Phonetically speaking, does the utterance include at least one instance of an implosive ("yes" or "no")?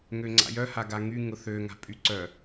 no